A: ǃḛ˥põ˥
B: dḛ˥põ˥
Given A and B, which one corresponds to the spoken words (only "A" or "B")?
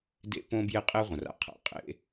B